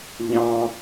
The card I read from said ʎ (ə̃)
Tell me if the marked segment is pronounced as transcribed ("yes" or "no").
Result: no